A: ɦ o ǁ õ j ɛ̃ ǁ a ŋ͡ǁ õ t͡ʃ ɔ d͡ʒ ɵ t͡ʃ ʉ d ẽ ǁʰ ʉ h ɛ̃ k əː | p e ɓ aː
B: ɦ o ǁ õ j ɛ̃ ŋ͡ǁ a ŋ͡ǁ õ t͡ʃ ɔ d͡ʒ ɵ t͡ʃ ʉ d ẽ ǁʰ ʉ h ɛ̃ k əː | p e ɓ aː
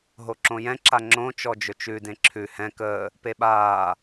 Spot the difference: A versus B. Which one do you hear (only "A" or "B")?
A